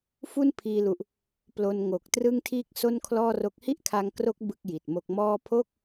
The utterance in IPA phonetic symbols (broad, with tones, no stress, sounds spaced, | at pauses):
f u˥˩ n pʰ iː˧ l u˨˩ ʔ | p l o˧ n ŋ o˨˩ k̚ t r ɯ˥˩ ŋ tʰ iː˥˩ k̚ s o˥˩ n kʰ l ɔː˥˩ r o˦˥ k̚ h i˥˩ ʔ kʰ a˧ ŋ k r o˦˥ k̚ b ɯ˥˩ k̚ j i˨˩ t̚ m o˦˥ k̚ m ɔː˥˩ pʰ o˥˩ k̚